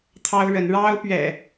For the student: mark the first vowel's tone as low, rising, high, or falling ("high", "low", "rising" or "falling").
high